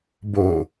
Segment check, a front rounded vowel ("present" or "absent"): absent